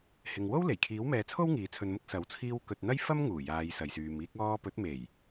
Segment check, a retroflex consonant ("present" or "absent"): absent